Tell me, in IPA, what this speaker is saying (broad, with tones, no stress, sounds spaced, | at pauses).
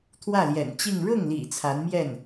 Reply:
t̪ʰ w ä˥˩ l j ɛ̰˨˩ n t͡ɕ i˥˧ ŋ ɻ ʊ˥˩ ŋ l ḭ˨˩ t͡sʰ a˧˥ n m j ɛ˥˩ n